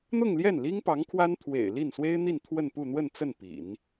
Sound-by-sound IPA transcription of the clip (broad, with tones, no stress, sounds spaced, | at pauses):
n̪ ʊ˥˧ ŋ l j ɛ˥˩ n l i˥ ŋ p ɑ˧˥ ŋ kʰ w a˥ n t̪ʰ w ḛ˨˩ ɪ̯ l i˥˩ n s w e˥ ɪ̯ n̪ i˥˧ n t̪ʰ w ə˥˧ n p u˥˧ n̪ w ə˥˧ n t͡s ə˥˩ n p ḭ˨˩˦ n